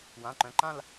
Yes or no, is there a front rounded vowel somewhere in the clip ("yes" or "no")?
yes